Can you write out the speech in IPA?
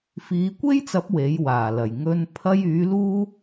f iː˨˧ kʷ e˥ j t͡s ɐ˨˥ p̚ w e˨˥ j w aː˨˩ l ɐ˨˩ j ŋ ɵ˧ n pʰ ɐ˧ j yː˨˥ l uː˥

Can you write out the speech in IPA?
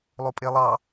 lˠ o pʼ e lˠ ɑ

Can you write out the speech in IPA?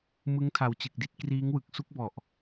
m ɯ˦˥ ŋ tʰ a˨˩ w t͡ɕ ɯ˨˩ k̚ d i˦˥ t̚ k r iː˦˥ ŋ w ɯ˨˩ k̚ s u˥˩ k̚ b ɔ˨˩ ʔ

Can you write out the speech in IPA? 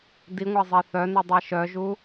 d i ŋʷ æ zˤ e θ œ n u dˤ e ʃ œ ʒ u

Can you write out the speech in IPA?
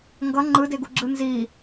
ŋ ɡ ʌ ŋ͡ǃ ɯ d e ɡ u ɡ͡ǁ ɯ n z i

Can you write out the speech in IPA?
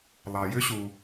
lˠ ɑ˩ j ʏ˥ ɕ u˩

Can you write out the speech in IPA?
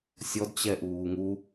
sʲ ɔ d t͡ɕ ɛ ʔ uː ŋ u

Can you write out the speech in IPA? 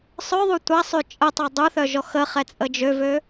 sˤ œ ðˤ u tʷ a sˤ y t͡ʃʼ ə tˤ o dˤ u θ œ ʒ ɔ x ə χ ɛ t͡sʼ ə d͡ʒ ø v ø

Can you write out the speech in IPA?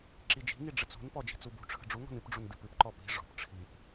ǁ i d͡ʒ i̤ ŋ i ɖ͡ʐ ə t͡s ṳ n p ɔ d͡ʒ i̤ t͡s u b ṳ ʈ͡ʂʰ ə̤ ɖ͡ʐ u ŋ ɔ̤ n ɨ p ɖ͡ʐ u n d ɨ p ɨ p ǃ ɔ p i̤ ʐ ɔ̤ p ʈ͡ʂʰ i p

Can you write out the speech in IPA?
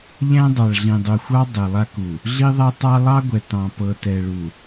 ʎ æ̃˦ dˤ ɑ˨ ɭ ɮ ĩ˨ dˤ u˨ xʷ ɑ˦ dˤ ɛ˨ lˠ a˦ k u˨ | ɮ i˦ ðˤ æ˦ tˤ ɑ˦ lˠ ɑ˦ ɡʷ ɛ˨ t ɑ̃˨ p ɤ˨ t ɛ˨ ɭ u˨

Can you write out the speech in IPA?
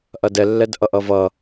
ʔ ɐ d ɛ lː ɛ d ʔ ʌ ʔ ʌ v ʌ

